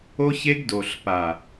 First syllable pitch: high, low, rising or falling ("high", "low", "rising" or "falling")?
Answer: high